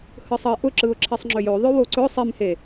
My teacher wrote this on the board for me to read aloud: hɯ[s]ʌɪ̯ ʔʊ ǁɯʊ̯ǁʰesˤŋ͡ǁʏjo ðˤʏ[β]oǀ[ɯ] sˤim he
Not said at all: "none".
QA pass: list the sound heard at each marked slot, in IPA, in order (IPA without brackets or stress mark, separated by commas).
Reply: sˤ, w, ʊ